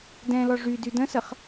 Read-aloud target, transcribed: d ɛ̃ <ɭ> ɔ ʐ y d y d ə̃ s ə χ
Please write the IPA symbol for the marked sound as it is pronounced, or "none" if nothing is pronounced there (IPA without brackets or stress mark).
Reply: l